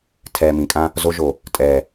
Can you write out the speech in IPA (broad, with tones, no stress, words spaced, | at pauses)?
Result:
tʰɛː˨mĩ˨kʼã˦ | zo˦ʒo˨ | tʼɛː˦˨